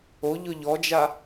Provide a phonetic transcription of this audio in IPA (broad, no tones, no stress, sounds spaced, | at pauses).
o ʎ ʊ ʎ ɔ d͡ʒ a